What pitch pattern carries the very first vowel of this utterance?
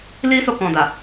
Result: high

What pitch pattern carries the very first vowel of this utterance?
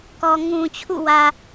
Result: low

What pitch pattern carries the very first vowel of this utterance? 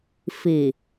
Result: low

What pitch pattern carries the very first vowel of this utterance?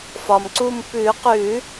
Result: low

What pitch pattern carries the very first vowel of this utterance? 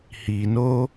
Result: low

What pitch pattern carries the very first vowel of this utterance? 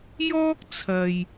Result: high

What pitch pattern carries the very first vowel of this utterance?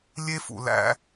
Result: high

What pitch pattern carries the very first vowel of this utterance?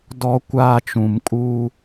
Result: high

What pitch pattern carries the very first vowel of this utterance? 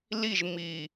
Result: falling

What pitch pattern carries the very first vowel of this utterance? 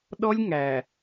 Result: high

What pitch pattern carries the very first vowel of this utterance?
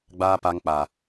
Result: high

